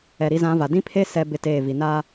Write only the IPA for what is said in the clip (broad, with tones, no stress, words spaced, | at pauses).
ɛ˨ɾi˨˦zã˨˦va˨ dĩ˦pʰe˦ sɛ˦ bɪ˦teː˦˨ vi˨naː˦